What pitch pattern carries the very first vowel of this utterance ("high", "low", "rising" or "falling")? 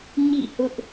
falling